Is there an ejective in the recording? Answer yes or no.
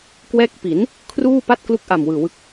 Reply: no